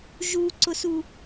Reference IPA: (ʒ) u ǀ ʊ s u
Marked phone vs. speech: correct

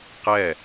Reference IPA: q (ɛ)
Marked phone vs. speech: correct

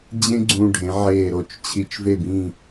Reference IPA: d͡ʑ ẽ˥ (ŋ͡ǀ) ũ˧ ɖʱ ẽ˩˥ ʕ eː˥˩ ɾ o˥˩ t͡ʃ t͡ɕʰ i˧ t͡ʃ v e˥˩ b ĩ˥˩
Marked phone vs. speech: incorrect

